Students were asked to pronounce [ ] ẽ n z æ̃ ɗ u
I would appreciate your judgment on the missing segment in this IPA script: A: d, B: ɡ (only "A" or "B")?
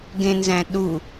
B